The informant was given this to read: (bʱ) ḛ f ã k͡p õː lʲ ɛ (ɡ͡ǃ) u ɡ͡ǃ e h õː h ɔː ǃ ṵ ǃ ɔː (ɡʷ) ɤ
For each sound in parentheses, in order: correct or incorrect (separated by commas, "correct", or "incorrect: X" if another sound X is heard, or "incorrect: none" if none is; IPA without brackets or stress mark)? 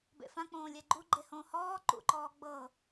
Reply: incorrect: b, correct, incorrect: ɡ͡b